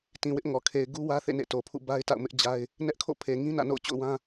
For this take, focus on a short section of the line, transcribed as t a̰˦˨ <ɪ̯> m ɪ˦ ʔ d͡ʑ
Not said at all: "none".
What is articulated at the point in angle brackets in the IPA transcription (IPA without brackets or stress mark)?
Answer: ʊ̯